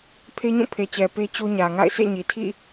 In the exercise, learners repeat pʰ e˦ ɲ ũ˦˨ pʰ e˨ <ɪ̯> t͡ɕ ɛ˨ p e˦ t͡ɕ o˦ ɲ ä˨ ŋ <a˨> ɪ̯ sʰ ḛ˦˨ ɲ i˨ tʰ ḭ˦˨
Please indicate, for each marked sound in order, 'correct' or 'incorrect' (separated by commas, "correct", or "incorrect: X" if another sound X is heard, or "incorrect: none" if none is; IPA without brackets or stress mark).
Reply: incorrect: none, incorrect: a̰˦˨